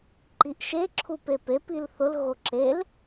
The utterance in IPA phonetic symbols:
ǃ i ʔ ʃ e ǁʰ u p e p e p i l θ ʊ l ɣ o ǁ e l

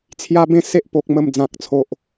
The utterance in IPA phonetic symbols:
t͡sʰ j a˦ b ẽ˦ s e˦ ʔ p o˨ k̚ m ə˨˩ m d͡z ã˨ k̚ t͡sʰ o˨ ʔ

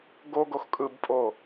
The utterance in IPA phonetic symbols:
ɡ o ɡ o x kʼ ɯ b pʼ o

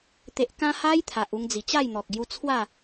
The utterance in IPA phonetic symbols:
t̪ e˨ ʔ k ã˧ h a˦ j t̪ʰ a˨ ʔ u˧ ŋ d͡z i˨˩ t͡ɕ a˥˧ j n̪ ɔ˨ k̚ ɡ j u˧ t͡sʰ w a˥˧

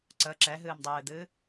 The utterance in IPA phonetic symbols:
ǀ ə ǁ ɛ ɦ ɨː m dˤ ɨː d̪ ɨː

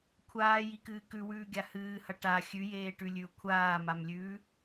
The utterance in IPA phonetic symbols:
kʷʰ aː j i k ɨː k ʉ w ʉː ɡʲ a h ɨː h ɐ ʈ a xʲ ʉ j eː ʈ ʉ lʲ ʉ ʊ̯ kʷʰ aː m a m lʲ ʉː

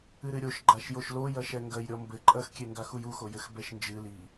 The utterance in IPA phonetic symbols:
ɨ ɾ ɨ ɾʲ o ʃ ɡ͡ǃ a ʃ j o ʃ l o j ɐ ʃ ɛ ŋ ɡ ɐ j ɾʲ ɔ m b ɘ ǃʼ ɐ x kʲ e ŋ ɡ a x u j u x o j ɘ x b ɛ ʃ n d͡ʒ ɨ l i

